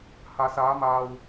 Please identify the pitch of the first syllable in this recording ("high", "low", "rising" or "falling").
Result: low